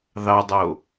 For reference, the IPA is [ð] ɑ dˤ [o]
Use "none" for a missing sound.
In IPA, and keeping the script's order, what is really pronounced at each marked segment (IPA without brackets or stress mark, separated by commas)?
ð, o